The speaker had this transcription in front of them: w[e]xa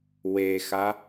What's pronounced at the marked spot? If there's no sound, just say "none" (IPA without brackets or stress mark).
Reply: e